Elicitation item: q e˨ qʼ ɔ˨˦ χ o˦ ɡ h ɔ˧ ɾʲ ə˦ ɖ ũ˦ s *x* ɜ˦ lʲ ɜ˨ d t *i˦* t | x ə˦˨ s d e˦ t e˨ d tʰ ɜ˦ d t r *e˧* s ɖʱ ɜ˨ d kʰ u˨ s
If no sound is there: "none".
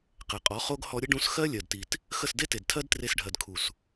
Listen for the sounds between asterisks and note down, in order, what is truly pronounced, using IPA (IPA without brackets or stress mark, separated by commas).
x, i˨, e˧